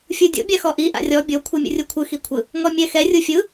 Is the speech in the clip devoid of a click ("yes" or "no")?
yes